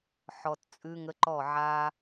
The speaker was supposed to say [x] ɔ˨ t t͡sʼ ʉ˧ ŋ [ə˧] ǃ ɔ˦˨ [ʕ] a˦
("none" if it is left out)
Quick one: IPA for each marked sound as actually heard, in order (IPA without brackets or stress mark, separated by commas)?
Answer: ħ, ə˧, ʕ